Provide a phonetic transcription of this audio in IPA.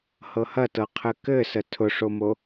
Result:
h ɤ h ɐ t ɤ qʰ ɘ k ɘ s ə tʰ ʊ ʂ o m o

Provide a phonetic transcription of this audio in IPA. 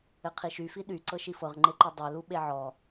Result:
ɘ qʰ i ʃ y f i ɗ y ǀ ɤ ʃ i f ɤ ʁ ŋ͡ǃ e ǃ u dˤ ø l u ɓ e ʕ ɔ

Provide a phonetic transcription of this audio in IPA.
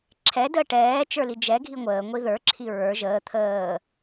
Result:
ǁʰ ɛ d əː ʈ ɛː t͡ʃ ə˞ l i d͡ʒ ɛ ɡʱ i ŋʷ əː ŋʷ i ð ə˞ ǁʰ i ɹ ə˞ ʒ əː t̪ʰ əː

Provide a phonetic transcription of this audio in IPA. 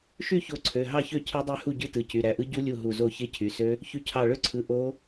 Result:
ʃ y˥˩ ç o˧˩ ǀʰ ø˩˧˩ ɦ ɑ˥˩ ç ø˥˩ cʰ ɯ˦˥ dˤ y˥˩ h u˥˩ ɟ ɯ˦˥ t ɯ˩˧˩ c y˩˧˩ ɾ æ˧˩ ʔ ɯ˦˥ ɟ u˦˥ lʲ u˥˩ ɦ u˧˩ z o˥˩ ç e˦˥ cʰ y˩˧˩ s ø˦˥ | ç y˧˩ cʰ ɑ˧˩ ɭ ø˥˩ ǀʰ ɯ˩˧˩ ʔ o˦˥

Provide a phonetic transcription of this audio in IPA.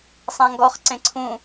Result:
sˤ ã ŋ ɡ ɔ χ ǀ ẽ ǀʰ ũ

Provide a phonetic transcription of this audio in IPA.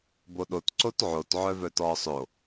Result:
b o ɗ o t ǀ o t ʕ o t ʕ œ v œ t ɔː sˤ o

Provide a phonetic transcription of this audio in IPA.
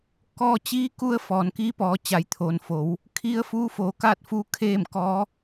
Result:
k ɔː˧ t͡ɕ iː˧˥ k u˧ ə̯ f ɔː˩ n k iː˧˥ p ɔː˩˧ t͡ɕ a˩˧ j t̪ʰ oː˩ n f oː˩˧ w | kʰ i˧˥ ə̯ f uː˧˥ f oː˩˧ k aː˥˨ t̚ f uː˧ kʰ eː˥˨ m k ɔː˧˥

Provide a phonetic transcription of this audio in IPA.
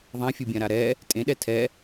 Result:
ðˤ ã fʲ u bʲ ã ɾ a ɾ ɛ | tʼ ẽ ɗ ɛ tʰ ɛ

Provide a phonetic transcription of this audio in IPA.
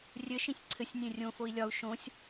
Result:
rʲ ɘ ʃ ĩ sʲ ǀʰ ɘ sʲ nʲ ẽ rʲ õ f o i̯ lʲ ɒ u̯ ʃ õ sʲ

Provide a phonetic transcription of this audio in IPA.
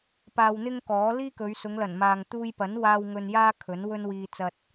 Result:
p aː˧ w n̪ ɪ˥ ŋ k ɔː˨˥ l iː˥ k ɵ˨˧ ɥ s ʊ˨˧ ŋ l ɐ˨˩ n m aː˨ ŋ t̪ uː˧ j p ɐ˨˥ n w aː˧ w ŋ ɵ˧ n j aː˥ kʰ ɵ˨˥ n w ɵ˥ n w iː˧ t͡s ɐ˨ t̚

